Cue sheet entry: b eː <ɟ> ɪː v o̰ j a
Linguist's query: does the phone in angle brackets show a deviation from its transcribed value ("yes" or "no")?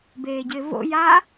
no